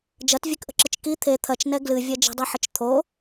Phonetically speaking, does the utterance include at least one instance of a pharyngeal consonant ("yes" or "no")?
yes